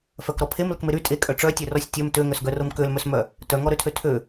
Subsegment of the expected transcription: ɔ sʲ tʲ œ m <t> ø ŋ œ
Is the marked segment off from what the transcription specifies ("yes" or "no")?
no